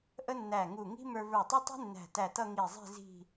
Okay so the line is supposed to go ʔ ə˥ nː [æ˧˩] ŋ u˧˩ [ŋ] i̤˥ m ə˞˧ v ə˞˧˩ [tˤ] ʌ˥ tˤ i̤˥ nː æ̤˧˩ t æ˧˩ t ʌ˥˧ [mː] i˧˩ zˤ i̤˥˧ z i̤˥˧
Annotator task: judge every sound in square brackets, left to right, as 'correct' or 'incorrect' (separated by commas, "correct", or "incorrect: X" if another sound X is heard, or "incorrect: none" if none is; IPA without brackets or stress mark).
correct, correct, correct, incorrect: ŋ